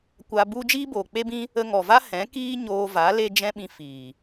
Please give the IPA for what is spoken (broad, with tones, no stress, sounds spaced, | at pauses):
kʷ a˧ b u˦ d͡ʒ iː˦ b oː˨ k͡p e˦ b ĩ˦ | ə˧ ŋ ɔ˨ v a˦ h ɛ̃˨˦ k iː˦ ɲ oː˧ v a˨˦ l e˧ d͡ʒ ɛ̃˧ ɓ ĩ˨ f iː˨